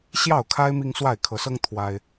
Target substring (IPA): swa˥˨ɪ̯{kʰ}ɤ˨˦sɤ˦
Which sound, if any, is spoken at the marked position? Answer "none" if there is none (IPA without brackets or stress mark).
kʰ